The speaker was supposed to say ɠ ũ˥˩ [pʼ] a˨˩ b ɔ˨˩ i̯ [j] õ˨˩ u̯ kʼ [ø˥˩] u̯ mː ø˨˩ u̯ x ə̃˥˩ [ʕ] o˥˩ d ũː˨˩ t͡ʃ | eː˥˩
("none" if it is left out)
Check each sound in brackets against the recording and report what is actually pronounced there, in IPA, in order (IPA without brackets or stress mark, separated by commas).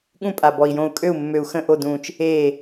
pʼ, j, ø˥˩, ʔ